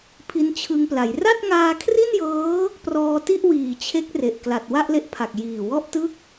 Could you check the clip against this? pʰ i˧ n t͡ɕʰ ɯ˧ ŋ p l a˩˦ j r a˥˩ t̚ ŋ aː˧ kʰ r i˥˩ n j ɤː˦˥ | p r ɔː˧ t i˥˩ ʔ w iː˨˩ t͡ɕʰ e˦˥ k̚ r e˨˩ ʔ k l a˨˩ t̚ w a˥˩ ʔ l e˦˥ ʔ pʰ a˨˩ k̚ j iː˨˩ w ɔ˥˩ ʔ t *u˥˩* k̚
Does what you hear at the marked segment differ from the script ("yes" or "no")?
yes